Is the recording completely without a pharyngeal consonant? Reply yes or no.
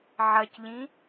no